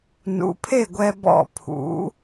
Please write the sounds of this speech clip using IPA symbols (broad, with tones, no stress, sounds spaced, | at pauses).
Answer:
n ṵ˩˥ pʰ e˥˩ ɡʷ ɛ˧ b ɔ̰˥˩ pʰ ṵ˩˥